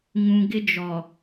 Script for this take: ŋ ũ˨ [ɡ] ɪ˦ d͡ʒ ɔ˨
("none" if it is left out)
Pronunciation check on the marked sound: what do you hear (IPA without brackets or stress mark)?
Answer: ɡ